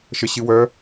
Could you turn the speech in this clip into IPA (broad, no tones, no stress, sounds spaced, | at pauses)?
ʃ ə ɕ ɨ w œ